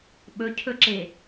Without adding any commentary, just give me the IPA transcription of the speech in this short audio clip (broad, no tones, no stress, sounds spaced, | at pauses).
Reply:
ɓ ɵ cʰ ɵ ǁ e